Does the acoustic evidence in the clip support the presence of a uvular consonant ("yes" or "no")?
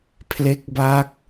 no